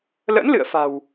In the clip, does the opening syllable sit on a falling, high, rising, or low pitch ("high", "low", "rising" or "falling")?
rising